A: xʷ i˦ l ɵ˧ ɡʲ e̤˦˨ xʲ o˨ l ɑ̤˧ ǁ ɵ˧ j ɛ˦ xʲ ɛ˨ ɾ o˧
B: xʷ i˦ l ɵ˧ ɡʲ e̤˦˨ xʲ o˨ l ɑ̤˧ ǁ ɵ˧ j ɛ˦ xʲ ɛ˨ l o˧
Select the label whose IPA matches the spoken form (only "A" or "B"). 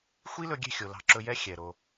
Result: A